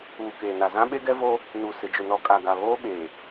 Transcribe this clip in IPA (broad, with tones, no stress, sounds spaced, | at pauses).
uː˨ k eː˨ n a˨ z ã˦ ɓ e˦ ɡ ɛ˦ v o˦ | n u˨ s ɪ˨ d͡ʒ ʊ˨ n ɔ˨ kʼ a˨ ɡ a˨ β oː˦ ɓ eː˨